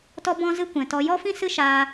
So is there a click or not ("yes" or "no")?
no